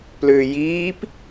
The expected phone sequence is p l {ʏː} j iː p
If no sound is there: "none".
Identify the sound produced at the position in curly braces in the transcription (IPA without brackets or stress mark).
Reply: ʏː